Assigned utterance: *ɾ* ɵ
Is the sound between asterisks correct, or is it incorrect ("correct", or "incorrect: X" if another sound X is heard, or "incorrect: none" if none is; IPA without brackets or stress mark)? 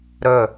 correct